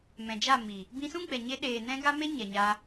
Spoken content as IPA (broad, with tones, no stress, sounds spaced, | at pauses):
m ɛ̃˨ d͡ʒ a˦˨ m i˨ | b ĩ˧ s ũ˦ ɡ͡b ɛ˨ ɲ e˧ ɗ eː˨ n ɛ̃˧ ɡ a˦ m e˦ ɲ ɛ˨ ɲ a˧